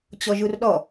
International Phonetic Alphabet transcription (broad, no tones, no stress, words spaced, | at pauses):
t͡ɕɔʒurɗɔ